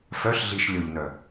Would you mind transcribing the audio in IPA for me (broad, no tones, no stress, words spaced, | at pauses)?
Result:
fœɬɮiʃ lʲoʎnœ